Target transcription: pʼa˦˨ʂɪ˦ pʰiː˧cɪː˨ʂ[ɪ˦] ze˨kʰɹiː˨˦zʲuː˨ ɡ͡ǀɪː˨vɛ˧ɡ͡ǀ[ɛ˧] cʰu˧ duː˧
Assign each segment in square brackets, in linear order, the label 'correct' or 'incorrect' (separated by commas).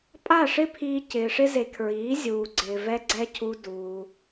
correct, correct